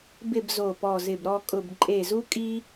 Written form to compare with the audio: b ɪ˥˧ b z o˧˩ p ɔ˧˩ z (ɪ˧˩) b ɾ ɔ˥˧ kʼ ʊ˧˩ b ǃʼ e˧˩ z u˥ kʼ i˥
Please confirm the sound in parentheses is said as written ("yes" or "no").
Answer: yes